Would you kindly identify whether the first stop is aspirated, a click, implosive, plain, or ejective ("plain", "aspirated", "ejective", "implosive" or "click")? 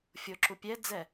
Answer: click